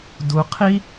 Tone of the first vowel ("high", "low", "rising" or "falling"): low